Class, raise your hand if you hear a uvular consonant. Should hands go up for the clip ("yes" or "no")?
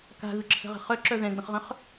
yes